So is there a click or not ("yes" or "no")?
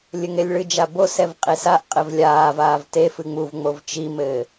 no